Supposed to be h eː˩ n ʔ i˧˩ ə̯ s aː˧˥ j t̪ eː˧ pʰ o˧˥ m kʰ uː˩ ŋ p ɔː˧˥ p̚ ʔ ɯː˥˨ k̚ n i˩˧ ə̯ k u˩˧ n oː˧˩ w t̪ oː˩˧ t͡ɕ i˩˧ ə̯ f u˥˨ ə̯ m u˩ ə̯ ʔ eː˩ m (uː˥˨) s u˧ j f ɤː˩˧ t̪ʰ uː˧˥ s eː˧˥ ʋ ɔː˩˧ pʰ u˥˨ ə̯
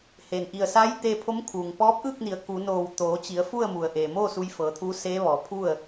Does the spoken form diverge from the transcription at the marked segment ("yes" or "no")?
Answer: yes